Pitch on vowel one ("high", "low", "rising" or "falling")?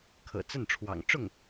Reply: low